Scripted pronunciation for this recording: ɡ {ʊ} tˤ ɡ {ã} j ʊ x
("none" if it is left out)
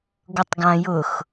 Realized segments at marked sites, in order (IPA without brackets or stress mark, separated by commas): ʊ, ã